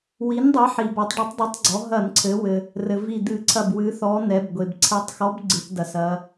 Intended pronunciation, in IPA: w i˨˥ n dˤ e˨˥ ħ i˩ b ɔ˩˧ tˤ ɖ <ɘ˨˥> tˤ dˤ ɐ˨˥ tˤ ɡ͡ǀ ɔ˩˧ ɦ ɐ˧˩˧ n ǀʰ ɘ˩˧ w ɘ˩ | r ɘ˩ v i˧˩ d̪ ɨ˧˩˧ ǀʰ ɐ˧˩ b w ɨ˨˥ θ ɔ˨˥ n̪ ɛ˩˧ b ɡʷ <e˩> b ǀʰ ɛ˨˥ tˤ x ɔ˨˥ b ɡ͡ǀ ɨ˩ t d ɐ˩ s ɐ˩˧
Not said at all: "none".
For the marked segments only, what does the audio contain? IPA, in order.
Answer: e˨˥, e˩

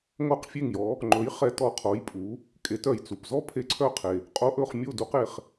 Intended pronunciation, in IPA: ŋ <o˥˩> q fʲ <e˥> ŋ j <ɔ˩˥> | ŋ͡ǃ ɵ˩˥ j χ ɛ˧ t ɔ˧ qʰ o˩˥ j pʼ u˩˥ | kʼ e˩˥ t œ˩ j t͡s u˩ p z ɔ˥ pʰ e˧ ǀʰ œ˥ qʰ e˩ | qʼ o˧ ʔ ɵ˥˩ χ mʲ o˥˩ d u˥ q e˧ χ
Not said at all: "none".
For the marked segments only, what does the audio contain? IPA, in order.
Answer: o˥˩, e˥˩, ɔ˩˥

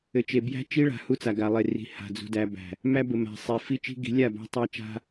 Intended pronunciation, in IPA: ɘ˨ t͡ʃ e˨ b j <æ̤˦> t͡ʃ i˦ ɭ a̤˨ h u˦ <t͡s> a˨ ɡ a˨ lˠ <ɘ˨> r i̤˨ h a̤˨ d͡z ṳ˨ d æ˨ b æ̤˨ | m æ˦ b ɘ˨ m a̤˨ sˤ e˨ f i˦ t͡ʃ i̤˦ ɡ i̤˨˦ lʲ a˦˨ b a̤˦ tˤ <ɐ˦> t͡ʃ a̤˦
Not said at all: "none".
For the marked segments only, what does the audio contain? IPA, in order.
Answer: æ̤˦, t͡s, e˨, æ˦

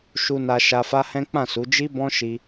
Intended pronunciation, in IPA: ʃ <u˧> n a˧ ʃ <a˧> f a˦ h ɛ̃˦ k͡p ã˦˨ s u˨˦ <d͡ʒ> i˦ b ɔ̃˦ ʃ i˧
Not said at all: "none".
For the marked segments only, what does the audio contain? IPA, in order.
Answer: u˧, a˧, d͡ʒ

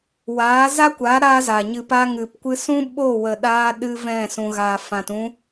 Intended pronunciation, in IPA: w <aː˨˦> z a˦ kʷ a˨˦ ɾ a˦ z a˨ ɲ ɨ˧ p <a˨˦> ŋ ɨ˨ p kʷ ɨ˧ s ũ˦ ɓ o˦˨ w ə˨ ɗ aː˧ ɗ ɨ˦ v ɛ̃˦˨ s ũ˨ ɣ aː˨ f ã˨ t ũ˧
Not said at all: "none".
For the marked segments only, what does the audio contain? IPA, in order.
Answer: aː˨˦, a˦

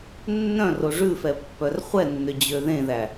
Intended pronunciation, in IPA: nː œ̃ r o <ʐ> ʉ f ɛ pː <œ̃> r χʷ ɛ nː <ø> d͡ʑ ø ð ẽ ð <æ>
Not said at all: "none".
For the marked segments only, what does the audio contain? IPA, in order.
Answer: ʐ, œ, ø, æ

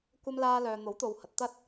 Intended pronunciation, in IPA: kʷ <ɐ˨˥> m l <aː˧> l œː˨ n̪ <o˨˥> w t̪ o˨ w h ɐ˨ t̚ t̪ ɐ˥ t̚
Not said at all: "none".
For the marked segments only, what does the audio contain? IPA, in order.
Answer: ɐ˧, aː˧, o˨˥

